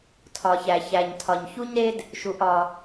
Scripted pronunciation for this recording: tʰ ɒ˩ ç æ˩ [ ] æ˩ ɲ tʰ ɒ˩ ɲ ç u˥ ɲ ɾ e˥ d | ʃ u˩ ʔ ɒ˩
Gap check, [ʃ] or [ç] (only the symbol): ç